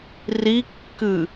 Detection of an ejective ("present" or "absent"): absent